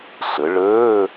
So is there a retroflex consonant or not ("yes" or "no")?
yes